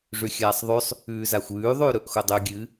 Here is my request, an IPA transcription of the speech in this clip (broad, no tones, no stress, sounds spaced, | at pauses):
ʐ ʉ xʲ aː sˤ ðˤ ʉ sˤ | ʉː z a xʷ ʉː ðˤ ʉː ɾ ɵ ʔ x o dˤ ʉ ɡʲ ɨ